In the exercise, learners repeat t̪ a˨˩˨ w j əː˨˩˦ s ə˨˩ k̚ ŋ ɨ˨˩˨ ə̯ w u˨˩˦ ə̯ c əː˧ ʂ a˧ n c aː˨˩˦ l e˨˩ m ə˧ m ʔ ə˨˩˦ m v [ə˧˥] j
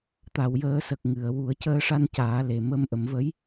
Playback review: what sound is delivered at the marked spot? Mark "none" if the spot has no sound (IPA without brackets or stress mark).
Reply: ə˧˥